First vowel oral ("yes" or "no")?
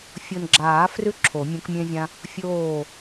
yes